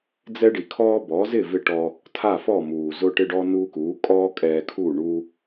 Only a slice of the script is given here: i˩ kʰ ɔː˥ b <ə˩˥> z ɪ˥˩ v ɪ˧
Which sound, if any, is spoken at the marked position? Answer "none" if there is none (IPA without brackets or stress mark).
ɔ˩˥